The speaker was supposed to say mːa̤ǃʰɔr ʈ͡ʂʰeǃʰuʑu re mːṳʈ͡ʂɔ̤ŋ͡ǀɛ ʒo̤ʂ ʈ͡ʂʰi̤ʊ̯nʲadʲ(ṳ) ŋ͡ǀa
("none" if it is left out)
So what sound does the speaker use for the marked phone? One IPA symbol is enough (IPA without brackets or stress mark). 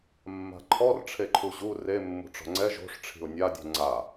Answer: ṳ